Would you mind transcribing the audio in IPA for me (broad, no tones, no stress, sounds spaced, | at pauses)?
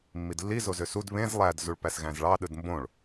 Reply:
mː i d lː i z o z ø s u d β ẽ z lˠ æ d z u ɭ p æ s ɣ æ̃ z ɭ ɑ ɗ ɯ d m b õ ɭ